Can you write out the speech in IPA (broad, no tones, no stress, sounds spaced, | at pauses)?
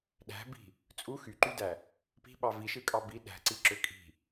ɗ æ̤ b i̤ | t͡sʼ u x y ǃ y d æ | p i̤ ɓ ɑ v i ʃ ɯ kʼ ɑ b i ɗ æ̤ ǀ i ǁ ø kʼ i̤